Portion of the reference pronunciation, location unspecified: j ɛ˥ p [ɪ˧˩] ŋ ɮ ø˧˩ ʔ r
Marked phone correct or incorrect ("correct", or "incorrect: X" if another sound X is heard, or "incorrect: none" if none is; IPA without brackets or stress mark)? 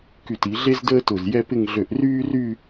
incorrect: ɪ˥˧